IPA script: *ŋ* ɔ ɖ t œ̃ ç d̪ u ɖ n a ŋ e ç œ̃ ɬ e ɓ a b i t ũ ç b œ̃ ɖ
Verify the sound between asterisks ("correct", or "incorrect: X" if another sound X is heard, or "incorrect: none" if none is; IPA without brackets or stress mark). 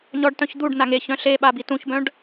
incorrect: ɲ